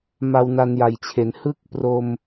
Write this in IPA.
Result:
ma˧wna˧nja˨˩jt͡ɕʰe˩˦n hɯ˥˩k̚pro˧m

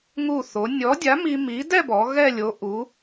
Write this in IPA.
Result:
ŋu˧˩ θo˩˧nʲɔ˨˥ dʲa˨˥mi˧ mi˨˥ dɛ˥˧bɔ˩˧ ɣɛ˥˧lʲo˨˥ʔu˨˥

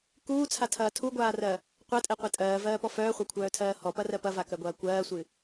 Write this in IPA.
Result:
kuːt͡sʰatʰɐː tʰuɡʷaːrɜ | qʷɜtʼɛqʷɛ tʼɜːvɜːpɔ fœːχʷakʷʰœːtʰɜː hɔpɐrɜ pɐvakɜɡʷɐː kʷɜːsʷɨ

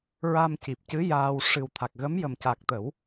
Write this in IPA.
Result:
ɹa˧mci˨˩p̚cɨ˧˥ jaː˧w ʂɨ˨˩wt̪ʰa˨˩k̚ɣə˧˥mjə˨˩m ca˨˩k̚t̪ə˨˩˦w

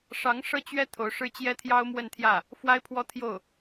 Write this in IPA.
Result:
ʂɑ˧˥ŋ ʂɤ˥˩t͡ɕɥɛ˥ t̪ʰo˧˥ʊ̯ʂɻ̩˥ t͡ɕjɛ˥t̪ʰjɑ˥ʊ̯mwə˥˧nt̪ʰjä˥˩ | fwa˥ɪ̯pʰwɔ˥ t̪ʰjo˥˩ʊ̯

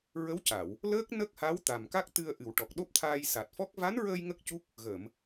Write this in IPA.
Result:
ɹə˧˥wca˨˩˨w | ləː˦˥k̚ nə˦˥k̚ha˧˥w t̪a˨˩mka˦˥k̚t̪ɨ˧ə̯ ʔɨ˨˩wʈɔ˨˩k̚ɗo˦˥p̚t̪ʰaː˧j sa˨˩t̚fɔ˦˥k̚ va˧˥nɹəː˧j ŋə˦˥k̚cu˦˥k̚ | ɣəː˨˩˨m

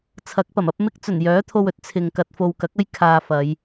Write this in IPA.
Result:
t͡sʰɐ˨˥k̚pɐ˨˩mɐ˨˥p̚ mɪ˥k̚ t͡sɵ˨˩njœː˨˥t̪ʰo˧wɵ˨˥t̚ t͡sʰɪ˨ŋkɐ˧t̚ fo˨wkɐ˨˥k̚ɐ˥j kʰaː˧fɐ˨˧j

